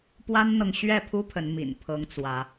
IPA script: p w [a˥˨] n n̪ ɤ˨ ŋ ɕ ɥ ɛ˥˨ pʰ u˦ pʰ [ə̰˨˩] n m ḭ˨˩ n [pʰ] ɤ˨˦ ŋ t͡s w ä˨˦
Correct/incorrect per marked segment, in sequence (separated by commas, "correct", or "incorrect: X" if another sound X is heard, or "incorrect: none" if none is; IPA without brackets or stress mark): incorrect: a˦, incorrect: ə˨˦, correct